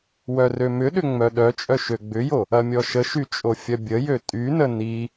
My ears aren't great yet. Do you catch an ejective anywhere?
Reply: yes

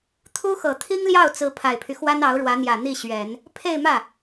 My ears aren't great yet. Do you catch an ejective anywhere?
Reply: no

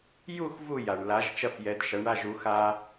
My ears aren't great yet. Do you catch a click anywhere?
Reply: no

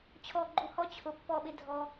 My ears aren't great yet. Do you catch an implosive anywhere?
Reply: yes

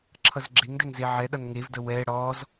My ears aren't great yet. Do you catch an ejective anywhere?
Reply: no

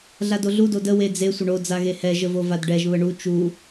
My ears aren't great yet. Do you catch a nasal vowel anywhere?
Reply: no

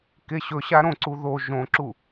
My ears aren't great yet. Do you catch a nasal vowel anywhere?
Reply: yes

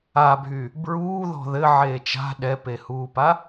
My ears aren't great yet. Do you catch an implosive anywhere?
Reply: yes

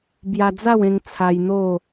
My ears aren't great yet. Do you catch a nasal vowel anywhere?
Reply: yes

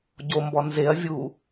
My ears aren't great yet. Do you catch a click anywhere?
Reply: no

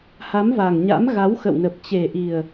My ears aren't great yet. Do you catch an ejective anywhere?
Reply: no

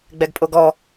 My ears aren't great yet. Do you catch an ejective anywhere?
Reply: yes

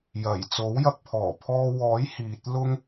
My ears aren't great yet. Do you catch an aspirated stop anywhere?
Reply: yes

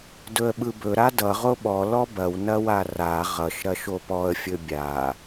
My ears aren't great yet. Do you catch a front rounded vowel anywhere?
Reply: no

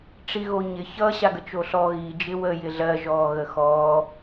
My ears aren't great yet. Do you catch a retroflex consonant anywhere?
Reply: yes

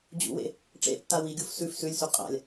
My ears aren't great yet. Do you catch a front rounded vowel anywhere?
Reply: no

